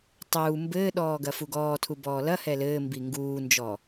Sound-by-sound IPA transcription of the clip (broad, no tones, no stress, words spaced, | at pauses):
tˤuː mbɘːɗɔːɡɐ fuɡɔːtʰu bɔːlɐhɛ lɘːmbi ŋɡuːnd͡ʒɔ